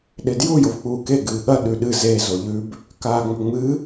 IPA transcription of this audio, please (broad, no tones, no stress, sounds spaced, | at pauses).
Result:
ɗ e d j u j o v k͡p uː k e ɡ ɨː ɠ ɐ ɗ ʉ ɗ ɨ z e z o ʎ ʉ b | k aː ŋ͡m ɵ ŋ͡m ɨ